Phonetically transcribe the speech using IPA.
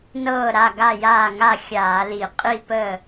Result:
n ɤː˥˩ ɾ a˥˩ ɡ a˥˩ j aː˥˩ ŋ a˥˩ xʲ aː˧˩˧ l i˧˩˧ qʼ i˥˩ p əː˥˩

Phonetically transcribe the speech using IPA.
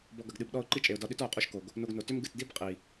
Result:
b ɔ˧ ɡ ɐ˨ ɡ ɗ ɨ˨ b ɗ ɔ˧ ʊ̯ ǃ i˦ t͡ʃʼ e˨ ʊ̯ d ɒ˧ ɗ ʏ˦ t ɔ˨ ʊ̯ qʼ u˧ ʃ k o˨ ɡ | n o˧ ɡ n o˨ t ʏ˦ m ɡ ɨ˨ t d i˦ b qʼ i˨

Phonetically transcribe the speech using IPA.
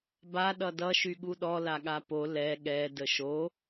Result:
b a ɗ ʌ d ʌ ʃ y ɠ u ɗ ɔ l a ɠ a p o l ɛ ɠ ɛ d ə ʃ o

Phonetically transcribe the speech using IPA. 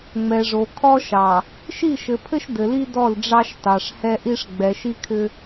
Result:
ŋ͡m ɛ˨ ʐ o˨ kʰ ɔ˦ ʃ ɑ˨ | ʃ i˦˨ ʃ ɘ˨ pʰ ɘ˦ ʃ d ɘ˨ l i˦ d ɔ˦˨ l ɖ͡ʐ ɑ˦ ʃ t ɑ˨ ʂ h ɛ˦ ʔ i˦ ʂ ɡ͡b ɛ˨ ʃ i˦ kʰ ʏ˦

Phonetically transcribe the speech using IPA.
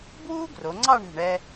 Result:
b w uː˥ ɡ r o˩˧ ŋ͡ǀ ɑ˥˧ ɳ e̤˧˩ ɳ ɛ˧

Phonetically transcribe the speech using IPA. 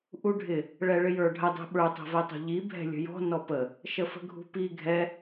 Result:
ʔ u ɖʱ ɪ | ɭ ɛ ɭ ɪ j ə˞ ɖʱ ə dˤ ɛ̤ ɓ ə˞ tˤ ɛ̤ v ɛ tˤ ṳ ʎ i bʱ ɛ̤ lʲ ə̤ j ɔ̤ n ɔ p ə | ʃ ə f ə̤ ɡʱ ṳ p i ɡʱ ɛ

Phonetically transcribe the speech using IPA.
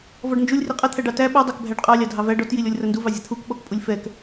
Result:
v ɔ ɖ n d͡ʒ u lʲ r i qʼ ɐ t̪ʰ æ ɖ ɑ t æ ɓ u dˤ æ k bʱ æ ɖ qʼ ɑ lʲ ɑ dʱ ɑ v æ ɖ ɔ t j i lʲ ɔ lʲ r ɐ n d u v ɑ zʲ ɐ t̪ʰ u k ɓ ɔ k pʼ u lʲ f ɛ k

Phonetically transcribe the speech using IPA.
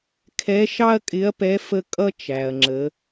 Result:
kʰ ɛ˧˥ ʃ ɑ˥ ɐ̯ kʼ ɪ˧˥ ɐ̯ p ɛ˧˥ f ə˥ kʼ ʌ˥ t͡ʃ æ˩ ɐ̯ ŋ͡ǁ ə˩˧

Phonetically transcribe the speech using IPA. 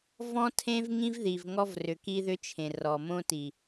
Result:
v ɔ̃˦ tʰ ẽ˦ v ŋ ĩ˦ v ð i˨ v ŋ ɔ˦ v r ʏ˨ k i˦ ð ʏ˦ t͡ʃʰ ẽ˨ r ɔ˨ m õ˦ t i˨

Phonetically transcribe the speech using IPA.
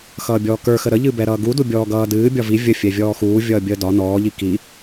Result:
x ʌː bʲ ɔː k ə˞ x ə ɾ ə ʎ ɨ b ɛ ɾ ʌː ɡ u d u bʲ ɔː ɡ ʌː d ɨː bʲ ɒ v i vʲ ə fʲ ɛ vʲ ɔː x uː vʲ ʌː bʲ əː d ɒ n ɔː ʎ i k i

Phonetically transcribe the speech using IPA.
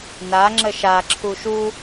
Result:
n a ŋ͡ǁ ə ʃ a ǁʰ u ʃ u

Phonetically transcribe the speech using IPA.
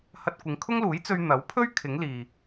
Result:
h ɐ˧ t̚ kʷ ɪ˨˧ ŋ kʰ ʊ˥ ŋ l uː˨˥ j t͡s ɵ˧ ɥ n̪ ɐ˨˥ w pʰ ɵ˥ ɥ kʰ ɪ˨˥ ŋ l iː˨

